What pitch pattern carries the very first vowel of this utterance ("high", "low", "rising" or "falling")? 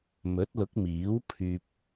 rising